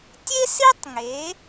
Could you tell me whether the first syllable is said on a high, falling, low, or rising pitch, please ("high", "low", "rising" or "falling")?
high